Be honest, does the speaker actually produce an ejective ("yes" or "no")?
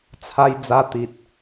no